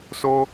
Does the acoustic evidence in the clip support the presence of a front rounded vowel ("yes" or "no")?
no